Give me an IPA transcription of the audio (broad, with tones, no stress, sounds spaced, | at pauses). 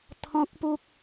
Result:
t̪ʰ ɔ̃˦ k̚ p u˦ k̚